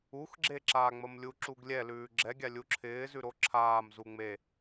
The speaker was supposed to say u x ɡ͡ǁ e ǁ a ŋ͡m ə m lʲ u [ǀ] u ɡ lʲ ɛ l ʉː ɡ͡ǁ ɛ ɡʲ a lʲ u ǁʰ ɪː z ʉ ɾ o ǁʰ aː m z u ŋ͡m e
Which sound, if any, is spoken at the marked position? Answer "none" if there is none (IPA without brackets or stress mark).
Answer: ǁ